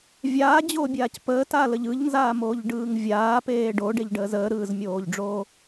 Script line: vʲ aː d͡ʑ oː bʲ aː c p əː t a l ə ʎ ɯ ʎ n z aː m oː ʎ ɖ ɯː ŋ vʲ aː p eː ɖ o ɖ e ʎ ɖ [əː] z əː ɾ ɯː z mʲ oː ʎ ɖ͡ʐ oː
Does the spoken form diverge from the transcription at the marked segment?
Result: no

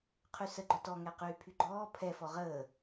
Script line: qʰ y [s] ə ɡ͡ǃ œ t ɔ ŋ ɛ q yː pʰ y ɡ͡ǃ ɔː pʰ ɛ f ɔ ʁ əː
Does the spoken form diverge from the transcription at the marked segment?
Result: no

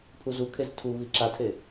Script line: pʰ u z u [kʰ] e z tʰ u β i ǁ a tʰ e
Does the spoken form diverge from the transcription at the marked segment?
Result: no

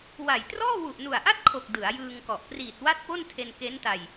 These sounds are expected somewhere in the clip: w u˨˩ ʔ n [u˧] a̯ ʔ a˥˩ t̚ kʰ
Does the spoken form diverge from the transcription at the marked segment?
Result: yes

